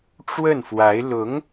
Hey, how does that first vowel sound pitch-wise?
falling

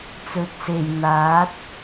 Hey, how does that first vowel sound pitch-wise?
rising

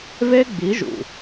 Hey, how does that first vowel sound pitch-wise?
high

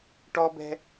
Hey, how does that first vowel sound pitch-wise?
high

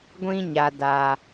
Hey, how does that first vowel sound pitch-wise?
high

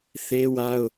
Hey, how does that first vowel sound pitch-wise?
high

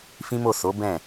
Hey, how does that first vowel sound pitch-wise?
high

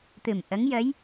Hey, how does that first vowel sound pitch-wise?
low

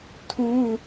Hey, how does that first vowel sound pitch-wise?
high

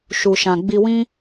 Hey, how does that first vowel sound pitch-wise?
low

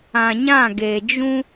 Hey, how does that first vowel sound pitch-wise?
low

